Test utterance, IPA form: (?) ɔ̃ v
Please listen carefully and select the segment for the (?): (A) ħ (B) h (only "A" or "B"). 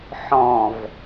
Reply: A